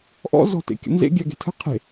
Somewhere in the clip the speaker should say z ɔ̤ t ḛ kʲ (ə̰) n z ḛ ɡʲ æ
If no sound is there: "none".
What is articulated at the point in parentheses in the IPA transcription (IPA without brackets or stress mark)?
ə̰